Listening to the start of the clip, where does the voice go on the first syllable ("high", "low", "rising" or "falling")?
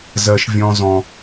high